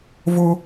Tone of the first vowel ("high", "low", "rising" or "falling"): high